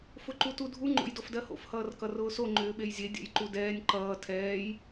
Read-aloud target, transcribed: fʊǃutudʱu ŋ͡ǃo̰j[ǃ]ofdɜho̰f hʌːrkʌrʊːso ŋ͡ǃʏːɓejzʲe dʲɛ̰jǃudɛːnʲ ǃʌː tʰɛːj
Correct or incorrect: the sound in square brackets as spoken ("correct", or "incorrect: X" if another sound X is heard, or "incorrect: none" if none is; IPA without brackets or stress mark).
incorrect: d